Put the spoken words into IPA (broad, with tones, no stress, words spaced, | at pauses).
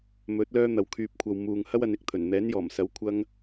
mɵ˨˥t̚ lœː˥n̪ɐ˨˧wkʰyː˧p̚kʷʰɐ˧w muː˧ŋ hɐ˥wɐ˧nɪ˨k̚t̪ʰɵ˨˩n n̪ɛː˨˥njɔː˨˩msɐ˨˥w kʷʰɐ˥ŋ